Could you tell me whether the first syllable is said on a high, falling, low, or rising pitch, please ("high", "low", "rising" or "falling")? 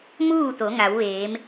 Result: falling